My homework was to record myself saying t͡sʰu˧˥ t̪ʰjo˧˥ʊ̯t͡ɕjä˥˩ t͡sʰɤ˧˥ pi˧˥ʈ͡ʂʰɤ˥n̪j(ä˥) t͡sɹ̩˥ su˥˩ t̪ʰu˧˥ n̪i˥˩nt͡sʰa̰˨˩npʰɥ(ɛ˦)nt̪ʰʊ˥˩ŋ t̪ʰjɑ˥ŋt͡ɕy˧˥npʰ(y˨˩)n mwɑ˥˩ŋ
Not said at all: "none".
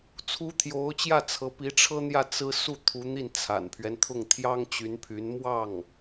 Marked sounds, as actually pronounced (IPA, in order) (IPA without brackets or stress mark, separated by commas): ä˥˩, ɛ˦, y˧˥